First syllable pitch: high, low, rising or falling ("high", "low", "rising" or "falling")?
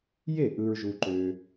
falling